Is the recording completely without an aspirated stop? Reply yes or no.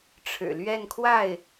no